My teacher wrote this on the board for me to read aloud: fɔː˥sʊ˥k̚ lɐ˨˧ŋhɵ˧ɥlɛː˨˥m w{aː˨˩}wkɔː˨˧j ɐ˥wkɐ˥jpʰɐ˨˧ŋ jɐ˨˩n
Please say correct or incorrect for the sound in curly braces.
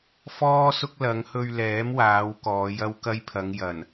incorrect